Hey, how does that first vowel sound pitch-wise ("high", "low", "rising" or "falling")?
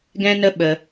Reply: high